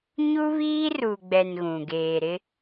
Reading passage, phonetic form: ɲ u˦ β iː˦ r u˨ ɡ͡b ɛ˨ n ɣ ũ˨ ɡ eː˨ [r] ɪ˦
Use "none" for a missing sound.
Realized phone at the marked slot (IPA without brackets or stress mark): ɾ